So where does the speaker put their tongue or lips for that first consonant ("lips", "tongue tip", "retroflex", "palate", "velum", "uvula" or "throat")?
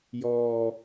palate